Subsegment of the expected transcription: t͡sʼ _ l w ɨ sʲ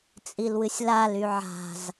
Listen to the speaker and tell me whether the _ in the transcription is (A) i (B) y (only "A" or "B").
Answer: A